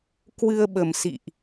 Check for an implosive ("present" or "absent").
present